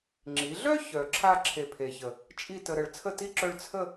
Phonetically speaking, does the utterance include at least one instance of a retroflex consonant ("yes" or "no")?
yes